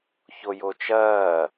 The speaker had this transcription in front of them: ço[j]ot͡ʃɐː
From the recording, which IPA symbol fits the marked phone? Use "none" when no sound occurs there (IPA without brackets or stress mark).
j